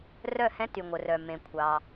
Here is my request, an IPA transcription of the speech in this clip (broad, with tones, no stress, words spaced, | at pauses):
rœ˦˨hɛ̃˧˥ty˩ŋʷœ˩ rœ˩mẽ˩ kʷʰɑ˩